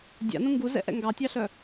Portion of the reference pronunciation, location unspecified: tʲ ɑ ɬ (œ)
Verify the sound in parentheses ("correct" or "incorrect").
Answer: correct